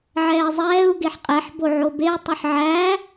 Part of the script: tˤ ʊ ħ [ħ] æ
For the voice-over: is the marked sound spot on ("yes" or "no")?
no